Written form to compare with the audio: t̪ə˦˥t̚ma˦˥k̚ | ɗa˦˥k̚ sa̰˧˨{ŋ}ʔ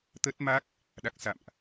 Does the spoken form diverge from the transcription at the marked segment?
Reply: yes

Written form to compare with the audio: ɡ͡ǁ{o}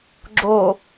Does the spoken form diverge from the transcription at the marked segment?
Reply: no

